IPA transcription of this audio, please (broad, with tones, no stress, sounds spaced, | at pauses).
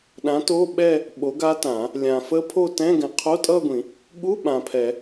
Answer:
ɗ ã˨˥ t o˧˥˧ ɓ ɛ˥˧ | ɓ o˨˥ ɡ a˦˥ t ã˨˩˦ | lʲ ã˨ f ə˦˥ pʰ o˥˧ t ɛ̃˧˥˧ ɡ ɛ̃˨ qʰ o˧˥˧ tʼ ʌ˥˧ ɡʷ ĩ˨˩˦ | ɠ u˧˥˧ ɓ ã˨ pʰ ɛ˨˩˦